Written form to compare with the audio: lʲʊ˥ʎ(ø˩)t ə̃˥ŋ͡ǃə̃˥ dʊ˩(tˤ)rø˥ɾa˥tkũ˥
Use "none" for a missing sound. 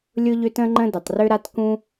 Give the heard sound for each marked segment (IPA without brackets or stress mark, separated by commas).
ø˥, tˤ